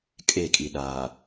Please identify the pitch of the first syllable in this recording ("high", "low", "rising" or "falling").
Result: falling